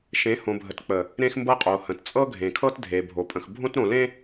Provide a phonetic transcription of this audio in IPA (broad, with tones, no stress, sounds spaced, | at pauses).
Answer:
ʃ ẽ˨˦ h õ˨ bʱ ə˨ t k͡p ə˨ | ɾ ẽ˦ x m b ɤ˦ qʼ o˨ h ə̃˨ t t͡sʼ ɤ˦ ɡʱ ẽ˨ kʰ ɤ˦ t dʱ e˨ bʱ o˨ pʼ ə̃˨ x bʱ õ˦ t ɾ õ˨ l ẽ˦